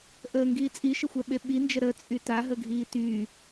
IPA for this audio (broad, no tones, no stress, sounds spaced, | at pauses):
ʔ əː ŋ ɡ iː t͡sʼ i ʃ ə xʷ ɛ ɓ e ɓ i n d͡ʒ ə ɾ ə t͡sʼ y t a ɦ ə ɡʱ iː t y